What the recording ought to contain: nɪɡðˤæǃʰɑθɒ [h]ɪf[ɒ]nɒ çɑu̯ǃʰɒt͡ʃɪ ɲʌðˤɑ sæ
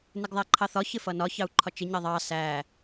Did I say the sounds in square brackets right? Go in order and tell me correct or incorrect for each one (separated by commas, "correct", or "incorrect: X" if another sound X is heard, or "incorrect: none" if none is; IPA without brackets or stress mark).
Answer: incorrect: ç, incorrect: ʌ